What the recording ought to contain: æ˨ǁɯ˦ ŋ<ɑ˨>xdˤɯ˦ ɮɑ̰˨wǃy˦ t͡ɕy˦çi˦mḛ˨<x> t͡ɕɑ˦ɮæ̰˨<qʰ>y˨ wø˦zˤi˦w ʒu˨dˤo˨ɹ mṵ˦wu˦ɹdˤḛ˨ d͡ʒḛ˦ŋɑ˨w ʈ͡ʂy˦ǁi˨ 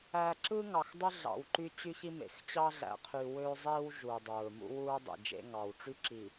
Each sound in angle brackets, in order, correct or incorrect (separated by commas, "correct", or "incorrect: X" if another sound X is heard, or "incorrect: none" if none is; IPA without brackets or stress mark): correct, correct, correct